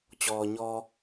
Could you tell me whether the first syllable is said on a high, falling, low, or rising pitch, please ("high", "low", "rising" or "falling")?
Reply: low